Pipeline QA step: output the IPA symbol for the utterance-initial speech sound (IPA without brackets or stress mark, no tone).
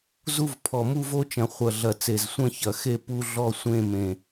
z